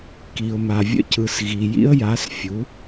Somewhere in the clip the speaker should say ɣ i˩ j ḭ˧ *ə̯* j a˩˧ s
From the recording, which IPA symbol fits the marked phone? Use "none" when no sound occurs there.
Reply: ə̯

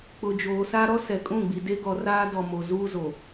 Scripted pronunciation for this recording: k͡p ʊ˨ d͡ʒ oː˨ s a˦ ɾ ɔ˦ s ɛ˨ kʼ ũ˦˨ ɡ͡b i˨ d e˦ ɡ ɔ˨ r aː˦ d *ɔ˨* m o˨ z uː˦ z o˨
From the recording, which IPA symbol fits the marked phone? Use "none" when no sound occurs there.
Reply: ɔ˨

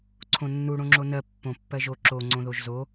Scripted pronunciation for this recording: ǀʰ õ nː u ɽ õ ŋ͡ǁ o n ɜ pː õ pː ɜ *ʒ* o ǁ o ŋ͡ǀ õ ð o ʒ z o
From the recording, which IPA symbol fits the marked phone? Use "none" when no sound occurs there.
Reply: ʒ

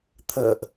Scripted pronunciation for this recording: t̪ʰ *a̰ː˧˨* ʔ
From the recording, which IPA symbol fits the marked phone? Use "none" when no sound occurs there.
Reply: ə̰ː˧˨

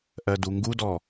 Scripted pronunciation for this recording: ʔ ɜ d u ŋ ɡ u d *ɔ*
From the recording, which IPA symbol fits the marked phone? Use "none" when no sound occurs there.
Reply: ɔ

